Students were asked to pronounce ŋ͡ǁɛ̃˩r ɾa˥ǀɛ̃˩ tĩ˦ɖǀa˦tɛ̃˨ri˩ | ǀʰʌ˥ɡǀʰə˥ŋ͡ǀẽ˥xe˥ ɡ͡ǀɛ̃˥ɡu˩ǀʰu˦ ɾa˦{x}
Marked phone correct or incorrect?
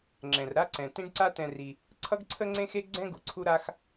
correct